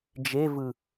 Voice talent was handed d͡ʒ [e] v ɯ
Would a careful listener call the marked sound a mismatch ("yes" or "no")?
no